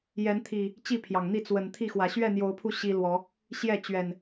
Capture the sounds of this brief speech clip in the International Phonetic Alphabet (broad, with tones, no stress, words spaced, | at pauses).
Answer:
jɛ˨˦nt̪ʰi˨˩ | t͡ɕi˥˨pʰjɑ˩ŋn̪i˥˨ t͡swə˨˩nt̪ʰi˥˨xwä˨˩ ɕɥɛ˥˨n̪jo˨˦ʊ̯pʰu˧ ɕi˦lwɔ˨˦ | ɕjɛ˥˨t͡ɕɥɛ˨˩n